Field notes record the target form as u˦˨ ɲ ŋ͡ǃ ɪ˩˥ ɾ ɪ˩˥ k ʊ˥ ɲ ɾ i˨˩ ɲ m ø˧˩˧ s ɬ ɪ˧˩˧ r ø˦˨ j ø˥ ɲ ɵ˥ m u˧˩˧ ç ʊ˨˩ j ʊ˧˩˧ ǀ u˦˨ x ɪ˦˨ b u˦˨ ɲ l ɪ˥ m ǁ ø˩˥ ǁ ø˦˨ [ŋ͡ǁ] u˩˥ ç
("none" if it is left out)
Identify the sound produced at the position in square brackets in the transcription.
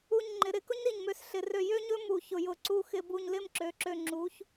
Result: ŋ͡ǁ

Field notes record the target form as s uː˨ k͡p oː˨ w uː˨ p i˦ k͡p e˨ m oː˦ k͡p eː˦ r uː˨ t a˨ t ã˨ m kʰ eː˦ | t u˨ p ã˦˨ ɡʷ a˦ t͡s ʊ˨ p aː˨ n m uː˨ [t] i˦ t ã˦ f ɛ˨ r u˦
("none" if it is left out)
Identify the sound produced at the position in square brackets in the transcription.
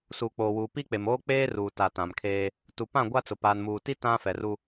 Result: t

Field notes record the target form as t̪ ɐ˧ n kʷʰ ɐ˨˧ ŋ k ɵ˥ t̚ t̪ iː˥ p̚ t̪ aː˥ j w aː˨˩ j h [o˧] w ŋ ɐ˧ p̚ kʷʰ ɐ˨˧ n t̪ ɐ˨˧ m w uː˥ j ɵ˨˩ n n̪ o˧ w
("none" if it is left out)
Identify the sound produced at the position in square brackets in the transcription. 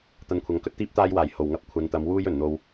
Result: o˨˩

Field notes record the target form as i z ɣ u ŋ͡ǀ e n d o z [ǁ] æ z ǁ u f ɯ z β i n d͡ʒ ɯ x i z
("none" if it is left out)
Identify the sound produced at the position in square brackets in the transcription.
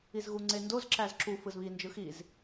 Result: ǁ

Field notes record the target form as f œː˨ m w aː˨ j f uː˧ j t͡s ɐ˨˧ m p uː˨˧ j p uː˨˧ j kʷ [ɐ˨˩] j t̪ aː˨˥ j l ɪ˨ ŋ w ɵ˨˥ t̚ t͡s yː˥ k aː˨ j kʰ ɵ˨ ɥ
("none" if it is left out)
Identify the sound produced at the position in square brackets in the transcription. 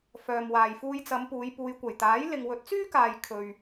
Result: ɐ˨˩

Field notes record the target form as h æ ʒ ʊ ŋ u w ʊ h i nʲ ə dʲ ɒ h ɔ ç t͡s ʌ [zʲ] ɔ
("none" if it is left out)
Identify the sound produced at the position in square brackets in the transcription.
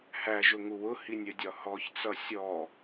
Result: sʲ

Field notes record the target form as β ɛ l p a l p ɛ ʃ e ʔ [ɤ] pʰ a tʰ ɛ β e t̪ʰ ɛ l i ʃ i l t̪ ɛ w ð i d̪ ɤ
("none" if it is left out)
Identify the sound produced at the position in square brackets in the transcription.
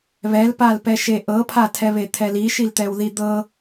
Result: ɤ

